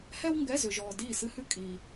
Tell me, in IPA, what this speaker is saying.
hɛ˥wŋɡɛ˧˥˧zʏ˨ʒɔː˨ diː˥˩sɨ˥hʉ˥ kʼi˨

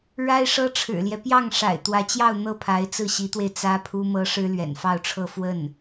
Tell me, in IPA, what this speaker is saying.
ɻa˥ɪ̯ʂɤ˥ʈ͡ʂʰɻ̩˨˩ljɛ˦ pjɑ˥˩ŋ ʂa̰˨˩ɪ̯t̪wä˧˥t͡ɕjɑ˥˧ʊ̯ n̪ɤ˥˩pʰa˧˥ɪ̯ t͡sɹ̩˥˩ɕi˧˥t̪we˧ɪ̯ t͡sä˥pʰu˥mɤ˥ ʂɻ̩˥lɥɛ̰˨˩nfɑ˥˧ʊ̯ʈ͡ʂʰɤ˥˧ fwə˥˩n

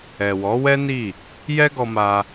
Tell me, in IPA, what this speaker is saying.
ɛ˨wɔ˨˦wɛ˦ ni˦˨ | jɛ˦ɡɔ˧ma˧

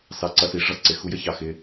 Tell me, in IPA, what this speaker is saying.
sɑ˨ǀʌ˨si˨ ʐʌ˦ǀɪ˨ xu˦jə˦çɑ˨ xɪ˦

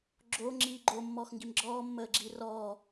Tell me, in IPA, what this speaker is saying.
ɡ͡ǁo ŋ͡ǁiːɡ͡ǃo mːɔːxŋɡimɡ͡ǁɔː mːəːɡ͡ǁiːrɔː

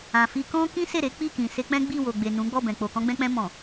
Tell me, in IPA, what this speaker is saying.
ã˨ fi˧kɔ̃˦ kĩ˦se˦˨ɾe˨˦ k͡pi˦˨kĩ˨ se˧k͡pɛ̃˦ ɡ͡bi˦˨wo˨ɡ͡be˨nũ˨˦ ɡ͡bɔ˦˨bɛ̃˨k͡po˨ kɔ̃˧ɡ͡bɛ̃˧k͡pɛ̃˧ mɔ̃˨

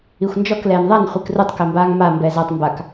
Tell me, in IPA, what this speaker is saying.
ixʷnd͡ʒɔk lɛːnðˤan χʷikrutˤ kɛmbaːŋma mbɛːzatˤ mbak

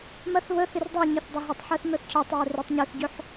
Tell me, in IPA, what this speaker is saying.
mɐθ βə θɪrdˤɛɲɪθ dˤʊɦʏtˤħɛθ mœθcʰœtˤwœ røtˤɲœθɟʏħ

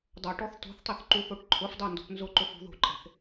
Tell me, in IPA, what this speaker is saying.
dˤoʈɔθ to̤θtˤeθ ǃuθoʈǃʰʊfdˤe ndo̤pnzʊǃof ṳðo̤ǃʼe̤θ

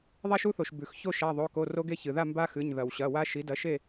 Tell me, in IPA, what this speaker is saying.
ðˤa˦ʃu˦θo˩ʃ bʉ˩x ço˥˨ ʃa˩˧˩ðˤo˩˧˩ko˩˧˩ ro˦ɡe˥˨çɨ˩ða˥˨ mba˦xɨ˩˧˩ɲ ðɐ˩wɕɐ˩˧˩wa˦ ʃi˩˥dɐ˩˥ʃe˥˨

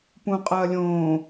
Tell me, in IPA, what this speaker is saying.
pũqʼɐː lʲõː

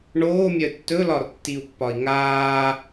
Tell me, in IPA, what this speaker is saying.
ɳoːmʲœ tːɵlɒrtːiu̯pːɒi̯ ŋaː

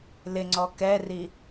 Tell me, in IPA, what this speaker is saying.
lɪŋ͡ǀɔ kɛri

